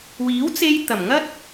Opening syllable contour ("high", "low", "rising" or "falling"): rising